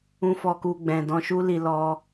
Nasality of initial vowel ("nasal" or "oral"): nasal